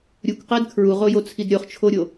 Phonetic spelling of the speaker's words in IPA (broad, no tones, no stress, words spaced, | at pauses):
ɾʲukʷqed kʰɹuʁojot͡sʰid ɾʲoχt͡ʃʰoɾʲo